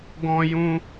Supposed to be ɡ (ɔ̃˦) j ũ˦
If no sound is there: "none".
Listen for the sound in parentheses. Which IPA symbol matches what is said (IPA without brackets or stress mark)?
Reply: ɔ̃˦